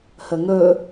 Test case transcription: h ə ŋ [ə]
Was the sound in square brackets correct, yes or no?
no